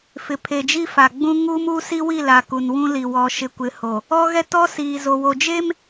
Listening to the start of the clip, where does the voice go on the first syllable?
low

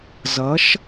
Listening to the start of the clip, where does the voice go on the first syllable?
rising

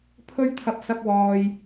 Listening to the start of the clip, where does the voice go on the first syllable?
high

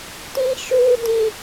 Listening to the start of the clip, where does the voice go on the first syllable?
high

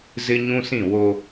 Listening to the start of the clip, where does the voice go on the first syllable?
high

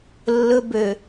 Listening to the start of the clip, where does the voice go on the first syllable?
high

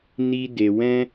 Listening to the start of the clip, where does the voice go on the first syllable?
high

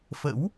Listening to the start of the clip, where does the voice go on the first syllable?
rising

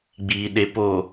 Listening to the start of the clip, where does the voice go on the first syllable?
low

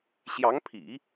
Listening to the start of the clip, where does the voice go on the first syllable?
rising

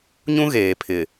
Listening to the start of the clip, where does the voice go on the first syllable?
high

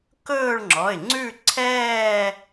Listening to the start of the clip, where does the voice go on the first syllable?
falling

